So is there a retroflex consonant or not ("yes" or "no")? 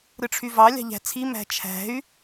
yes